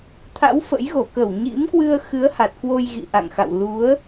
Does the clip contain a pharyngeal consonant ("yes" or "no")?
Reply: no